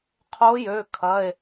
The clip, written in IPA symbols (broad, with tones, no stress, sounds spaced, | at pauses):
qʰ o˧˥ j ø˩˧˩ kʰ ɐ˩˧˩ e̯